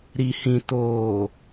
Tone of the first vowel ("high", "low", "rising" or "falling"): low